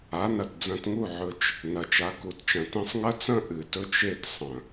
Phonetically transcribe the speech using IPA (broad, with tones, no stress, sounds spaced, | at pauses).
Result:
a˨˦ n ɐ˨ t d͡z ɐ̃˧ t ŋ u˦˨ ʕ ɵ˧ t͡ʃ | n ɐ˨ t͡ʃ a˨˦ k u˨ t t͡ʃ ɐ̃˨ t ĩ˦ sˤ ŋ ɐ˦ t͡s ɐ̃˦ ʔ ɨ˨ t ɵ˦ t͡ʃ e˦˨ t sˤ ɐ̃˨